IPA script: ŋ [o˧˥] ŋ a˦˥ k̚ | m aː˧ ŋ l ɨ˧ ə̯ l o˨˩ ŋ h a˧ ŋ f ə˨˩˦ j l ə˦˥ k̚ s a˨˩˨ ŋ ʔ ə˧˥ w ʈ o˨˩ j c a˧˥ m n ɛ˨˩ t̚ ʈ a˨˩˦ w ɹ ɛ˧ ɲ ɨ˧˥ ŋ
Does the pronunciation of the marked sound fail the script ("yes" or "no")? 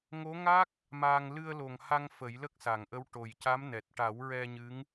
no